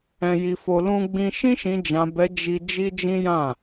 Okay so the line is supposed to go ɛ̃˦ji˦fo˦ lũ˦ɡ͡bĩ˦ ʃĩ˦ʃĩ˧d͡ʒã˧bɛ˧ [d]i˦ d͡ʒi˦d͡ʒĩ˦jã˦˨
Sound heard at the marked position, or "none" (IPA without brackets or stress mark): d͡ʒ